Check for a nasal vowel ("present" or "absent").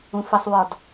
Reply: present